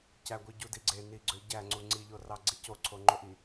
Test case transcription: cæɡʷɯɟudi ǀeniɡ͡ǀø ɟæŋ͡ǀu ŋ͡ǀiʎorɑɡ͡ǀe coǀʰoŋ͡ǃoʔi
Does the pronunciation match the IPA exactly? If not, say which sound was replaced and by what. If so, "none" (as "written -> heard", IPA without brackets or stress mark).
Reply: ǀ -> ɡ͡ǀ